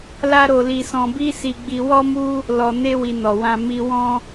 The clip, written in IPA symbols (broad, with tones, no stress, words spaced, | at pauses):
la˦ɾo˧li˧sɔ̃˧ bi˦si˧ɡ͡bi˧ wɔ˦mu˦ | lɔ˨ne˧wi˨ nɔ˨wã˧ mi˧wɔ̃˦